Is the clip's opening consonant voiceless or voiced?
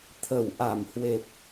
voiceless